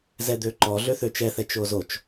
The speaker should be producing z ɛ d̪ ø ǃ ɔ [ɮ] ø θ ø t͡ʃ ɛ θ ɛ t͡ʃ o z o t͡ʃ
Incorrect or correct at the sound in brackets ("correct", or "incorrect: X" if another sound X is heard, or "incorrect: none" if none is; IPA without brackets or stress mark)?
correct